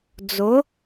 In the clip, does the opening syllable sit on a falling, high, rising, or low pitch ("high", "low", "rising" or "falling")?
rising